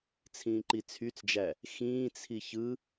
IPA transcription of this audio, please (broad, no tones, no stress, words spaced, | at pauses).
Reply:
t͡sʰĩːǃit͡sʰyt͡sd͡ʒæ | xĩːt͡sʰi çɯ